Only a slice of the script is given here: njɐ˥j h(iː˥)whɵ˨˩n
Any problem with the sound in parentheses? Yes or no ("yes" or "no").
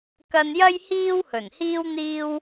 no